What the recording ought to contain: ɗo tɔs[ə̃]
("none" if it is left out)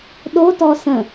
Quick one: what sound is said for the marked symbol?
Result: ə̃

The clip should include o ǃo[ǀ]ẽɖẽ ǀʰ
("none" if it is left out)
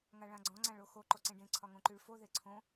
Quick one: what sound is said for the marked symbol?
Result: ǀ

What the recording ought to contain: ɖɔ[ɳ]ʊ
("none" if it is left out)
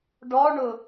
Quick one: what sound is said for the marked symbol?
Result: ɳ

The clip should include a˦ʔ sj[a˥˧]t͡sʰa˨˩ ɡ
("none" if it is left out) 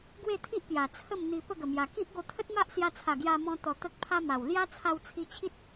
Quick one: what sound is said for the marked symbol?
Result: a˧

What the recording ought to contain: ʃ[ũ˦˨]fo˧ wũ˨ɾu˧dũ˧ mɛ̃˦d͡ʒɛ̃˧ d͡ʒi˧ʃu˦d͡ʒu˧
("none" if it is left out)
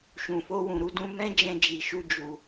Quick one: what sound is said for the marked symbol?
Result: ũ˨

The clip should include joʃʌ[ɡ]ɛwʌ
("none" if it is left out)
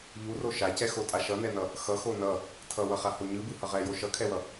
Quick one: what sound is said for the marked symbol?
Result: kʰ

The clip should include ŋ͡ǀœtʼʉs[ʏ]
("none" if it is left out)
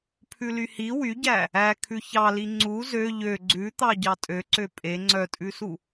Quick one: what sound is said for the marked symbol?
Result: u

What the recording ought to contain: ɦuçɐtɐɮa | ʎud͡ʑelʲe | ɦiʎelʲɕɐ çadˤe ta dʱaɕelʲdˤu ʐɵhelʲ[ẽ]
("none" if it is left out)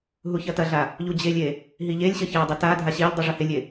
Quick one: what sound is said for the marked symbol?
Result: e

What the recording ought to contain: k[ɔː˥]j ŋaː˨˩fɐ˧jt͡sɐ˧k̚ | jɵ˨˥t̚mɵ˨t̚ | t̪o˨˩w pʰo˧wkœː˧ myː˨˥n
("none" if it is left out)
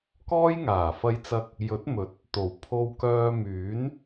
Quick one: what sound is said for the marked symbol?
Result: ɔː˥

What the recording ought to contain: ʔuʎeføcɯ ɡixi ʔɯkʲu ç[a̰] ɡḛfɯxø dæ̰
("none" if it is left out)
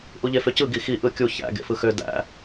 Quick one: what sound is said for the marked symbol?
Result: æ̰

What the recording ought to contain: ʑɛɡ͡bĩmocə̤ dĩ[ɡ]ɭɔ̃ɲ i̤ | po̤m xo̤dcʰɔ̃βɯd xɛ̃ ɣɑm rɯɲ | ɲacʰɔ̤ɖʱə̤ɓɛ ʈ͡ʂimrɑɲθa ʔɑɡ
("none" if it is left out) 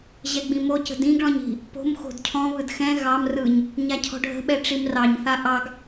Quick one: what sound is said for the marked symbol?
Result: ɡ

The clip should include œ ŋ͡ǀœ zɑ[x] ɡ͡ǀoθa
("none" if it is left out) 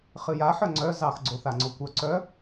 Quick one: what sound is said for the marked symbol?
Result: x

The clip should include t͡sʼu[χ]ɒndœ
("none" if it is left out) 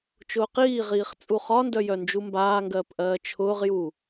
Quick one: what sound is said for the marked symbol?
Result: χ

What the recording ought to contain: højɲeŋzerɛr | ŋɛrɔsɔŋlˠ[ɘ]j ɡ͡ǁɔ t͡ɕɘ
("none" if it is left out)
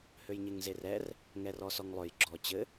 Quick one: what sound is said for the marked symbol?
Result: ø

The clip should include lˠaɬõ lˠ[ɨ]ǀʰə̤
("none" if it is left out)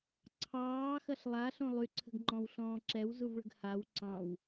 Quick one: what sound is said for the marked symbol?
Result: y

